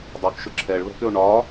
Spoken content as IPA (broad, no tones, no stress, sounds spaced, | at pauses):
dˤ u k ʃ ʊ ǁʰ ɛ ɭ β ɛ̤ k ʏ o̯ ɳ ɒ